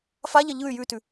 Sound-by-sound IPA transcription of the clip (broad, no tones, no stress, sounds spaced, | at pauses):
f a ʎ ɐ ʎ ɯ y̯ j ʉ t ʉ